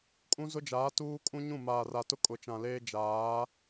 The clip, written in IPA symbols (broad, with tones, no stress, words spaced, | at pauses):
kʼũ˦zʊ˦d͡ʒaː˨˦ tuː˦kʼũ˦ɲũ˦˨ maː˨ra˨tʊ˦ kʼʊ˨t͡ʃã˨leː˦ d͡ʒaː˨˦